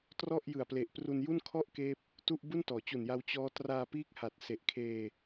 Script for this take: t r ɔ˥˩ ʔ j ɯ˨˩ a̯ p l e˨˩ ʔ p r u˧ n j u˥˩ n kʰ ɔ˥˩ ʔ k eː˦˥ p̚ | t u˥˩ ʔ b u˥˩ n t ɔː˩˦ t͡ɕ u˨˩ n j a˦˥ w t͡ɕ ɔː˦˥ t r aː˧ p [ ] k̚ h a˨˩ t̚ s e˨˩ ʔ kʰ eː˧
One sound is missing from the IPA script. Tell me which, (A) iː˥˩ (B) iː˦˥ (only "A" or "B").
B